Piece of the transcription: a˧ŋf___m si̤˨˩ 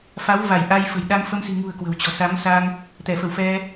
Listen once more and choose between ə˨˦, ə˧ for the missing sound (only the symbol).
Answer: ə˧